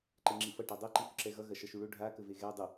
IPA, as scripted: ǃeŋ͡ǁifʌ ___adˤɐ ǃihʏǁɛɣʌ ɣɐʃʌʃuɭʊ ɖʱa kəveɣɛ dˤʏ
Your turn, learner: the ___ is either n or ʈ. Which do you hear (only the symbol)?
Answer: ʈ